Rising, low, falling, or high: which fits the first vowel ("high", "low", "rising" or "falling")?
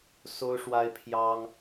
high